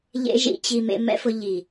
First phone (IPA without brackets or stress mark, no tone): ʎ